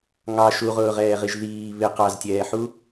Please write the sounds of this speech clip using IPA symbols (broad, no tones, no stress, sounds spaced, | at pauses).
ŋ ɑ ʃ u ʁ ʊː ʁ ɛː ʁ i ʒ ð iː β ɪ q ɑ z tʲ ɛː ħ u